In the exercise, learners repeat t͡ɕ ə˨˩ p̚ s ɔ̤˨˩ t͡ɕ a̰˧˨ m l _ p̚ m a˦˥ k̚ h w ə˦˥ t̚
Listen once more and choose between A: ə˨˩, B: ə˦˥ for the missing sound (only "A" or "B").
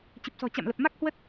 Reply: A